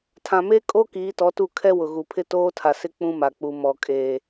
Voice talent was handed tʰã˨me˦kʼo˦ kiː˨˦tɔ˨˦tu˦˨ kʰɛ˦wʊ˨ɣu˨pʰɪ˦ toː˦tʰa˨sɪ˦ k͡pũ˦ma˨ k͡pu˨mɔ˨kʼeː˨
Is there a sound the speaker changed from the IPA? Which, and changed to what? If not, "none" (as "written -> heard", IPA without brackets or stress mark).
none